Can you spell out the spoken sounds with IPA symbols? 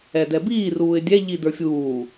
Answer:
ɛ d ɛ b iː r uː ɪ̯ dʲ ɛ ʎ i d ə˞ fʲ uː

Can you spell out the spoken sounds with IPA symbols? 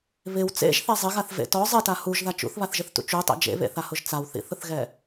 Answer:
β ɪ w t͡s ḛ ʒ θ ɛ zˤ ɪ ɣ a θ v ḛ t ɔ zˤ e t a h u ʒ ð a t͡ʃ ṵ θ β a θ ʒ ɪ θ t ṵ t͡ʃ u tˤ ḛ d͡ʒ ḛ β ḛ θ a h ʊ ʒ t͡s a w θ ḭ θ ʊ θ ɣ ɛ

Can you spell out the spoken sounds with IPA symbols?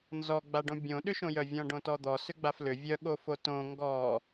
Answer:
n z ɔ ɡ͡b a ɖ õ bʲ õ ɗ ʏ ʃ õ j œ vʲ ɔ̃ ɖ õ t ɔ d̪ ɔ s ʏ ɡ͡b a f l ʏ vʲ œ ɠ o f o t õ ŋ ɡ ɔ

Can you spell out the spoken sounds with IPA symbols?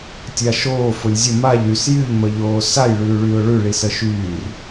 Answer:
tʲ a ʃ oː f ʊ lʲ zʲ ə m a ʎ y s j y ʎ m ə ʎ oː s a j ɭ ʉː ɭ yː ʊ̯ ɭ ʉ ɭ i s ə ʃ yː r

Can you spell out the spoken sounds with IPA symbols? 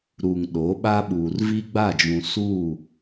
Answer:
ɾ u˨ ŋ ɗ o˨˦ ɓ a˦ ɓ uː˨ r v i˦ ɡ͡b a˦˨ d͡ʒ ũ˨ s u˦˨

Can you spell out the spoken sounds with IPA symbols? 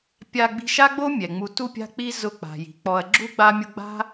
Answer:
pʲ a˧ ɡ͡b i̤˧ ʃ a˦ ɡ͡b o˦ mʲ ɛ˨ ŋ͡m u˧ t u˦ pʲ a̤˦ k͡p i˦ z ʊ˦˨ k͡p a̤˨ j i̤˨ k͡p ɔ˧ ɐ̯ ɡ͡ǁ u˦ ɡ͡b a˦ mʲ ʊ˦ ɡ͡b a̤˦

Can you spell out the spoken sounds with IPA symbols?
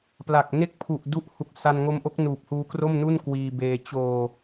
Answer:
p l a˨˩ k̚ n e˥˩ k̚ pʰ u˨˩ ʔ d u˦˥ ʔ h u˨˩ k̚ s a˧ n ŋ o˦˥ m ʔ o˦˥ k̚ n uː˨˩ p̚ h uː˦˥ k r o˥˩ m n u˥˩ n k w iː˧ b eː˧ t͡ɕ oː˨˩

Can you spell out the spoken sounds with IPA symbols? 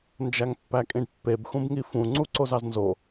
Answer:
n d͡ʒ æ ŋ pː æ kʼ ĩ ɖ pː e b x ũ b ŋ i f ũ ŋ͡ǀ u ǀ o z ɑ z n z o

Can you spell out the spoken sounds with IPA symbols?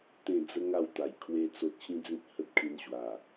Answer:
t̪ ẽ˥˧ d͡z ə˦ ŋ a˥˧ w t̪ a˨˩ j kʰ w e˦ t͡s o˦ t̚ ɕ ĩ˦ d͡z ĩ˦ t̚ h ə˦ t̚ kʰ ĩ˧ n ɕ w a˨˩

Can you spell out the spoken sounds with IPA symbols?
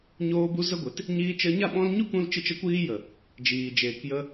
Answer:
ɲ oː˧ b u˧ z ə˦ ɡʷ e˨˦ t | ɲ iː˧ t͡ʃ ə˧ ɲ a˦˨ ɓ ɔ̃˦ l ɲ u˦ k ũ˧ l t͡ʃ ɨ˧ t͡ʃ ə˧ kʷ iː˦ j ə˨ | d͡ʒ iː˨ d͡ʒ eː˨ k j ə˧

